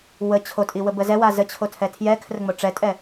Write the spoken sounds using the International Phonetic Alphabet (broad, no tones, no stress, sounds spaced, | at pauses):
w ə t͡ɕʰ o tʼ i w ə b ə z ɛ w a z ə t͡ɕʰ o tʰ ɛ tʰ j ɛ kʰ r ə ŋ͡m o ʈ͡ʂ ɛ tʼ ɛ